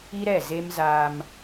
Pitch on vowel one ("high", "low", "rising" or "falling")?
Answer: high